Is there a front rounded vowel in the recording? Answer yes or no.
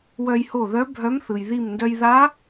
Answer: yes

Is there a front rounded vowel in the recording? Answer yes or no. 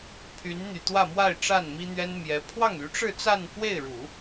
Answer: yes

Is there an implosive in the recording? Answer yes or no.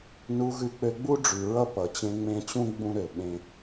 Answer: yes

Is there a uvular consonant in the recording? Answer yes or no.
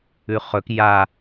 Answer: yes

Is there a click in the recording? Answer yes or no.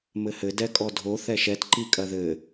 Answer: yes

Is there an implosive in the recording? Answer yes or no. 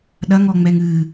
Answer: yes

